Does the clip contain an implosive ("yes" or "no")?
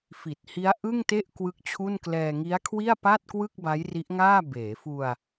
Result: no